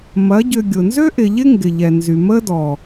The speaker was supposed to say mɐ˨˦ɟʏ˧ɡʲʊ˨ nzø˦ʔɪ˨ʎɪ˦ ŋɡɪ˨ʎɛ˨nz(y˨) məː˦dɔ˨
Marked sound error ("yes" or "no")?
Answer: no